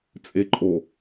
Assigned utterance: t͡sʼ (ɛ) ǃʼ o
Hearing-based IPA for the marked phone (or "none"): e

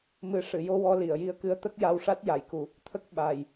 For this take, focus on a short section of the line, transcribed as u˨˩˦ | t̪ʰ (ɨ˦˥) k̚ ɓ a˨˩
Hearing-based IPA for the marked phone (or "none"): ə˦˥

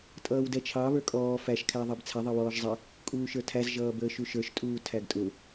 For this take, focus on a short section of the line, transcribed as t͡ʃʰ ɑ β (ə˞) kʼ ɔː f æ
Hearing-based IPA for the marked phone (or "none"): ə˞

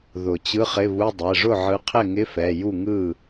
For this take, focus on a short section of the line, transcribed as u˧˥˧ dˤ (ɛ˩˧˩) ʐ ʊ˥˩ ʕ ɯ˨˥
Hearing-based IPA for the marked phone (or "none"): ɛ˩˧˩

